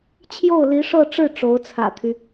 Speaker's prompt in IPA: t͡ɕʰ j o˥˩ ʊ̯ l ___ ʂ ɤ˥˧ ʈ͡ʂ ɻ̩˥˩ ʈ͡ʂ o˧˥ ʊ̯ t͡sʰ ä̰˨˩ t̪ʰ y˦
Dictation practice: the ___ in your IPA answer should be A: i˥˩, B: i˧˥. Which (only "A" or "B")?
B